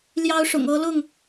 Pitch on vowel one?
high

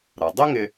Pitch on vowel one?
low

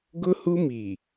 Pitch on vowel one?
high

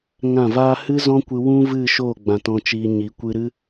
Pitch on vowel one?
falling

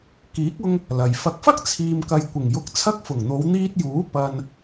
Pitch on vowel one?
rising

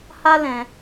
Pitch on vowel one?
high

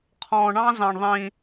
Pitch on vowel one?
low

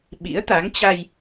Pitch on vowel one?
rising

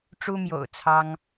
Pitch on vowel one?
high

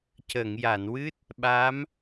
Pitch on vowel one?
low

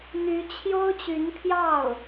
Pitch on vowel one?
rising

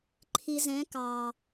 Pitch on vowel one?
low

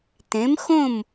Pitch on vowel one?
rising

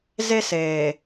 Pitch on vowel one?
high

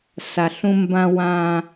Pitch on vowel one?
low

